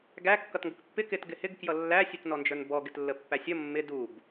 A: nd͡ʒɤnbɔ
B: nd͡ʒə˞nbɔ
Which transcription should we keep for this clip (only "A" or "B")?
B